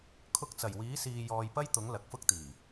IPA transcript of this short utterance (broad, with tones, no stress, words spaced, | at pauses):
kʰʊ˧k̚t͡sɐ˨˩jwiː˨˥ siː˧jɔː˧j pɐ˥jt̪ʊ˨˥ŋ lɐ˨k̚fʊ˥k̚t̪iː˨˩